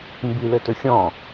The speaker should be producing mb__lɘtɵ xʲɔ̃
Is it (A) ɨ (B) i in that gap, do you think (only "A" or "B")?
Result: B